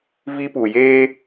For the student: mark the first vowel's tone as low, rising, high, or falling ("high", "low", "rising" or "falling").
high